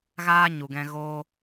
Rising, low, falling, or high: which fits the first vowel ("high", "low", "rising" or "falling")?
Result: high